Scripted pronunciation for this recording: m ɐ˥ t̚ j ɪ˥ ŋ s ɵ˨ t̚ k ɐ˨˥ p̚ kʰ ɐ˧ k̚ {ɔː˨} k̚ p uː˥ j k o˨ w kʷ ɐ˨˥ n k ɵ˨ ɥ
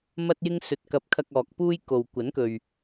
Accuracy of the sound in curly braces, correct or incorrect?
correct